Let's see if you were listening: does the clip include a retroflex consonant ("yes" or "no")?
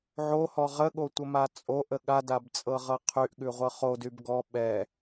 no